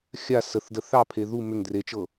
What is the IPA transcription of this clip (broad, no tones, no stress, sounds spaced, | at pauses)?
xʲ a s ə θ d ə θ ɑ pʰ e ð u m ʏ ŋ d r e t͡ʃ ɤ